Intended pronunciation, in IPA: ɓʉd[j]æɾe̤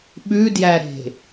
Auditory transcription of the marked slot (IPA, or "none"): j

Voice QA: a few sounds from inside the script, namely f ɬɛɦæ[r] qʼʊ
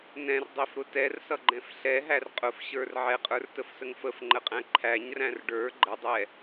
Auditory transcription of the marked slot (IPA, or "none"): r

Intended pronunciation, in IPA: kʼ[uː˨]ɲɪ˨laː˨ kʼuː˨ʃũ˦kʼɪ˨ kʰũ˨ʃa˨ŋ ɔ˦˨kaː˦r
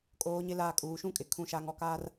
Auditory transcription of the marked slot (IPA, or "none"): oː˨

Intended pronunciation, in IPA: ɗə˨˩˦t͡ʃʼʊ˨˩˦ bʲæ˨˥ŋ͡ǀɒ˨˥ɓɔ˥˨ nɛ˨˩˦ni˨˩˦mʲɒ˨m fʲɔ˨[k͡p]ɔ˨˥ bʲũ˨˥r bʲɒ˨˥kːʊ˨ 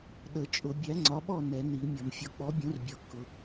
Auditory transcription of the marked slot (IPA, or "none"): k͡p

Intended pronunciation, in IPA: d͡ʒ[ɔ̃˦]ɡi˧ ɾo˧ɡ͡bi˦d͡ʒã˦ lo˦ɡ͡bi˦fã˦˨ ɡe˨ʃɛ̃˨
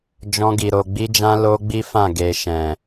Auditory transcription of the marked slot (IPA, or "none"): ɔ̃˦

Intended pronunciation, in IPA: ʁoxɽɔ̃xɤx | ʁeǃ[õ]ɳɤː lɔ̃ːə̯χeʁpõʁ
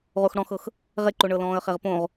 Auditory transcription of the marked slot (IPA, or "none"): o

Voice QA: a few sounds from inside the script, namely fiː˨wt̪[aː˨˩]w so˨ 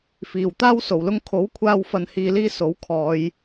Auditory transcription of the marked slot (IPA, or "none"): aː˥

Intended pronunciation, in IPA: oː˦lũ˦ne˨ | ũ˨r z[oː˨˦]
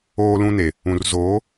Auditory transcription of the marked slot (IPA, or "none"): oː˨˦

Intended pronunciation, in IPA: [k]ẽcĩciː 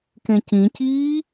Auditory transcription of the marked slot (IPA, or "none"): k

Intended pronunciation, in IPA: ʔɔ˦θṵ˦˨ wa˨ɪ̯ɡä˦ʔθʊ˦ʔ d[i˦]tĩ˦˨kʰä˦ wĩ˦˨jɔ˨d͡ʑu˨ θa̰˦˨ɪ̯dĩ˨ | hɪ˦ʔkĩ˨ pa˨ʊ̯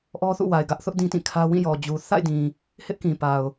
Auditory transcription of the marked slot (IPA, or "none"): ĩ˦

